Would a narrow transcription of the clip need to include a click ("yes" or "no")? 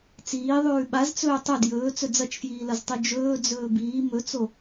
no